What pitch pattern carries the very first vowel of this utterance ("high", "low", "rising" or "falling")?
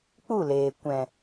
falling